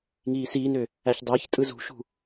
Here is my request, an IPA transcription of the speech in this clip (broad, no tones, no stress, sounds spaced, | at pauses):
ŋ iː s iː n ø | æ ç dˤ æ ç tʼ ɯ z ṳ ʃ ṳ